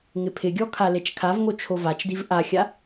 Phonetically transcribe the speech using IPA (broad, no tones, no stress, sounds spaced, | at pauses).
ŋ ɪ pʰ ɪ ɡʲ ɔ kʰ a l e t͡ʃ kʰ a v ŋ o t͡ʃʰ o v a t͡ʃ d i v ʔ a xʲ a